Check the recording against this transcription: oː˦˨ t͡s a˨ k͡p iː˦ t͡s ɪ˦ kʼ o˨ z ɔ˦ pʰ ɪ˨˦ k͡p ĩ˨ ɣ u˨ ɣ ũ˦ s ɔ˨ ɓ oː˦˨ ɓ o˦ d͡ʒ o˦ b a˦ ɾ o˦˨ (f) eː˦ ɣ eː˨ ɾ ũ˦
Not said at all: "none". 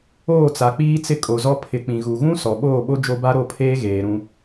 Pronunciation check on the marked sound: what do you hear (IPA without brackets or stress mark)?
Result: pʰ